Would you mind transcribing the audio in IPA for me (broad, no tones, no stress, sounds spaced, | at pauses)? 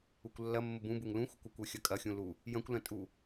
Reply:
u kʷ lː ɐ mː ə b ũ b u ŋ l ũ xʷ ə kʷ ə kʷ ø xʲ ɐ kʼ ɐ xʲ ũ l u | j ɐ̃ kʷ l ɐ̃ tʼ u